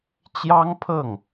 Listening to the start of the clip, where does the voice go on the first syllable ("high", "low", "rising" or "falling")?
high